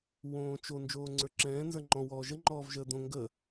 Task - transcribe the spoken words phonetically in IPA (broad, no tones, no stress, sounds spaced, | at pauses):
w õː t͡ʃ o n d͡ʒ oː ŋ͡ǀ ə˞ ǁ ɛ̃ː n z ə˞ ŋ͡ǃ ɔ̃ w ɔː ʒ ə ŋ͡ǃ ɔː v ʒ əː d̪ õ ŋ ɡ ə